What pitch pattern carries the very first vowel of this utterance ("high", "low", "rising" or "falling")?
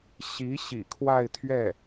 rising